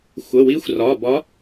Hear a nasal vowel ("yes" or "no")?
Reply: no